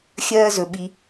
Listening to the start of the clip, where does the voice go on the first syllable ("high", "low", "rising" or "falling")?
high